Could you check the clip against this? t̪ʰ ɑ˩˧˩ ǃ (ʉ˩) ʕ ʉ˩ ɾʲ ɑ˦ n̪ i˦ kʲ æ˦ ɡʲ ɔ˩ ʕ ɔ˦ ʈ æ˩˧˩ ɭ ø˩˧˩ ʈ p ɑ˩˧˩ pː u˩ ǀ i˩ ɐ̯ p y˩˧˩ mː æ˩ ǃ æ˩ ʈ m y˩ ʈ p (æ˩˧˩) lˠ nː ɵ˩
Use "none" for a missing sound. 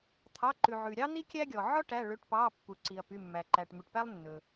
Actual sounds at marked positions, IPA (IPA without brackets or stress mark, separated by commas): ʉ˩, æ˦